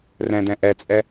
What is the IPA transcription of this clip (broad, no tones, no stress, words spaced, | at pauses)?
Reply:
rɛ̃dɛ̃ ʔɛt͡sʼɛ